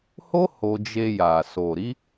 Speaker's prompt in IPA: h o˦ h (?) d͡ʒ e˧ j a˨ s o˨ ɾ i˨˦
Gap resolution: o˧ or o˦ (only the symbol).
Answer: o˧